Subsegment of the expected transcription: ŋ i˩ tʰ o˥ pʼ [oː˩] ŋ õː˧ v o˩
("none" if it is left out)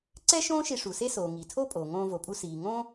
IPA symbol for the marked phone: oː˩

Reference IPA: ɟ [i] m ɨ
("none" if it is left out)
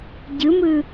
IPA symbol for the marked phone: ɨ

